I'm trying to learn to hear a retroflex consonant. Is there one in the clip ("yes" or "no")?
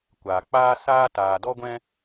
no